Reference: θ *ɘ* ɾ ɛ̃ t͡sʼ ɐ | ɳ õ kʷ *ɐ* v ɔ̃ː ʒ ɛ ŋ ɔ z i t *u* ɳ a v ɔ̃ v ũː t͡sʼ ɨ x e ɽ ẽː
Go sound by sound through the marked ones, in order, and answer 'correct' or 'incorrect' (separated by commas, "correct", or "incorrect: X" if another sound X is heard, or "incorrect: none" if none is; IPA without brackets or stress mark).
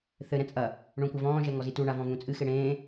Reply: correct, correct, correct